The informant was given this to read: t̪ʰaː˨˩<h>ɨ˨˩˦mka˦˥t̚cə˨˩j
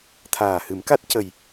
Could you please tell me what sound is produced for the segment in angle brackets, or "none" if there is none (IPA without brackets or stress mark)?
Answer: h